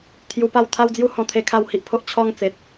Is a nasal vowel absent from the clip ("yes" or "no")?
no